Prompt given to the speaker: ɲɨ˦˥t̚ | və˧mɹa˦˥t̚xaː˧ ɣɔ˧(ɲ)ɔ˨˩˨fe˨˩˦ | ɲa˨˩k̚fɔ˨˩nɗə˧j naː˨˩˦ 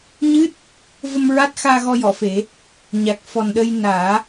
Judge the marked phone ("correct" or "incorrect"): incorrect